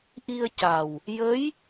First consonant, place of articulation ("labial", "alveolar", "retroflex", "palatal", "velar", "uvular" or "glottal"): glottal